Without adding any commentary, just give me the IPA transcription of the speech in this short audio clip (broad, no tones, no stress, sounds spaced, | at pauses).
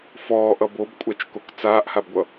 f ɔː ʔ ʌ b o b kʷʼ a t͡ʃ k o k t͡s aː ʔ h a b ɡʷ ʌ